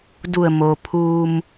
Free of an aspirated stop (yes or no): no